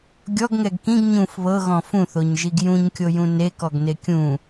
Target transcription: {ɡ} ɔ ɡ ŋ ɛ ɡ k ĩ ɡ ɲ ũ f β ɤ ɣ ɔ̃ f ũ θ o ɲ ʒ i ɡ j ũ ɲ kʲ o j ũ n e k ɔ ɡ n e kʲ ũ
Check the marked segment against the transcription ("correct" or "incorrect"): incorrect